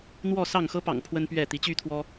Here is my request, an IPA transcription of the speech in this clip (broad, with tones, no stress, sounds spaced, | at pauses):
n̪ w ɔ˥˨ s ɑ˥˨ ŋ x ɤ˦ p ɑ̰˨˩ ŋ pʰ w ə˦ n p ɥ ɛ˥˨ t̪ i˨˦ t͡ɕ y˦ t̪ʰ w ɔ˦